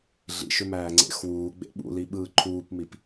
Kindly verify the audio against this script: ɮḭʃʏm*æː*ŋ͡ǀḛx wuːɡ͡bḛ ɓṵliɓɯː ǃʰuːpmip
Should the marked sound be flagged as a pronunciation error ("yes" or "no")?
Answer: no